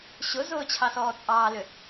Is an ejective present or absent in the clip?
present